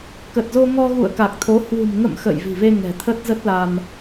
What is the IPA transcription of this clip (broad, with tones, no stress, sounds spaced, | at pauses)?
k ə˨˩ t̚ z o˧ ŋ ɔ˧ ɣ ṵ˧˨ ə̯ k a˨˩ k̚ t̪ʰ o˨˦ h w ṳ˨˩ m ŋ ə̰˧˨ m x ə̰˧˨ j v i̤˨˩ v e˧ ŋ ɛ̤˨˩ t̪ʰ ə˦˥ t̚ z ə˦˥ t̚ l a˧ m